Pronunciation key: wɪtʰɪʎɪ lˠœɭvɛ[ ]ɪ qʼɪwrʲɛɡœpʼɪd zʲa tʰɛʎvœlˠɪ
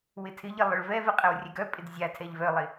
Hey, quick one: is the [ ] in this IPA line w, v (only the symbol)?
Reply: v